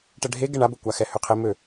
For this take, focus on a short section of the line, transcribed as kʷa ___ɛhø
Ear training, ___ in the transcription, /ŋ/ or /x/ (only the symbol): x